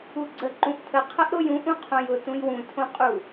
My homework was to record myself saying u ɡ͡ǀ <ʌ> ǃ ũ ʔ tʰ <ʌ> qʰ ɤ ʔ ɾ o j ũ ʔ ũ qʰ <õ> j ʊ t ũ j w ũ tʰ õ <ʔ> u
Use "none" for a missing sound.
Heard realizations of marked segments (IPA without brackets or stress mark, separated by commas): ə, ə, õ, qʼ